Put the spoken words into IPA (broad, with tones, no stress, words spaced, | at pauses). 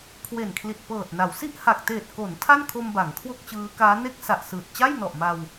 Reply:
kʰwe˨˩nkʰli˨˩t̚pɤː˨˩t̚na˩˦w si˥˩ʔha˨˩k̚ teː˨˩t̚ko˩˦n tʰa˥˩nkʰo˧m ba˩˦ŋkʰwo˥˩k̚t͡ɕɯː˦˥kaː˦˥ ne˥˩k̚sa˨˩ʔsɯː˨˩t̚ t͡ɕa˥˩jnɔ˨˩ʔma˧w